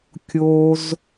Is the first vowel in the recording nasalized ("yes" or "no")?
no